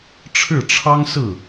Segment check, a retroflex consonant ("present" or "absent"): present